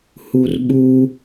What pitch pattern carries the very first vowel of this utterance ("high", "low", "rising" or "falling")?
high